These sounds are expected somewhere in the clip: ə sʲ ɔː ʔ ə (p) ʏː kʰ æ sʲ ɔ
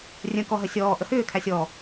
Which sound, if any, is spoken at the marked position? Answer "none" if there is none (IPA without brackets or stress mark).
h